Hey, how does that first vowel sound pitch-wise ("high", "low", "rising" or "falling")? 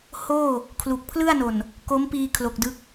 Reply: falling